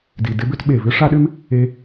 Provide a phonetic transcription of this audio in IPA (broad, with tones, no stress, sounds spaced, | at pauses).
d i˨ d ɪ˦ b ʏ˦ t ɓ e˨ v ʏ˦ ʂ a˦ ɗ ʏ˦ m | e˧